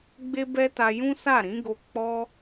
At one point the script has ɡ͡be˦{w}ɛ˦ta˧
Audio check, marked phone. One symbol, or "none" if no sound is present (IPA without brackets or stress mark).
b